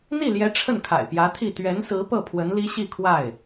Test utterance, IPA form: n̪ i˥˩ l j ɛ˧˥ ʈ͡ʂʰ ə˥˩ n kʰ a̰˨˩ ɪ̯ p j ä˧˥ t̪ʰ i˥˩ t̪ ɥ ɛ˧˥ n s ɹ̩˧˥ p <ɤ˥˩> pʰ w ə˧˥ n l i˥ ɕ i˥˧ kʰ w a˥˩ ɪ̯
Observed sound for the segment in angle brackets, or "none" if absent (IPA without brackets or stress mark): ɤ˥˩